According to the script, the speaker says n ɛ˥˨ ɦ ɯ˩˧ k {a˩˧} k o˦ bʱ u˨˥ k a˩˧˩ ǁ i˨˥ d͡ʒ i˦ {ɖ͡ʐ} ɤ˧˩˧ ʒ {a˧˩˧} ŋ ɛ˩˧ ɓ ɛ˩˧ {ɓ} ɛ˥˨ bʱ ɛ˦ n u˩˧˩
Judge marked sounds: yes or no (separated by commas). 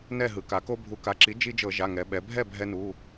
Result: yes, no, no, no